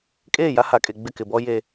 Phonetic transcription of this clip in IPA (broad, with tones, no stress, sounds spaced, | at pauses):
kʼ eː˦˨ j a˦ h a˨ kʼ e˨ ɡ͡b ɪ˦˨ k ɪ˨ b ɔ˦ j e˦